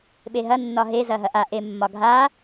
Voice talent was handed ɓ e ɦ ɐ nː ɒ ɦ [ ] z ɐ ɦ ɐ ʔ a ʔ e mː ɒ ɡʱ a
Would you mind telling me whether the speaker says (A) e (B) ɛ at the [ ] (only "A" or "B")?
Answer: A